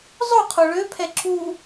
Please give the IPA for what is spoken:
zˤ o qʰ o ɭ ø pʰ ɛ ǁ u

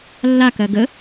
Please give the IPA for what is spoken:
lː a k ɜ ɡ ə

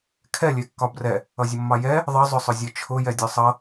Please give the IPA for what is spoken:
kʰ ɛ lʲ ɛ kː ɒ b r ɛ | ʌ zʲ ʊ mː ɑ j ɛ | ðˤ ʌ zˤ ʊ sˤ ʊ zʲ ɒ t͡ʃʰ ʊ j ɛ dʲ ɒ sˤ ʌ

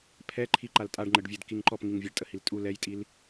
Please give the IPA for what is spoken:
pʰ ɛ ǃʰ i ǃ a l tʼ a ɖ ŋ͡ǃ ə ɖ vʲ ɛ d k i ŋ ǃ ɔ p ŋ i ŋ vʲ a ɖ tʼ ə h i l tʼ u l ɛ j tʼ i l

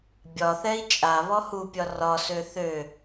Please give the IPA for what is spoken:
bʲ ɒ θ ɛ i̯ t͡ʃʼ a β ɔ h u pʲ ɒ r ɒ s ø θ ø

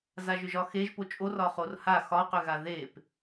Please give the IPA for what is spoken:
z a ʒ ʏ ʒ ɒ x e ʒ p o t͡ʃʼ o r ɒ χ o r h a x ɒ q ʏ ɣ a ð e p

